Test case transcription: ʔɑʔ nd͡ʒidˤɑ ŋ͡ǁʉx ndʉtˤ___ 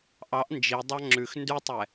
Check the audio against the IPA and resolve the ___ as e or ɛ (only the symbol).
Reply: ɛ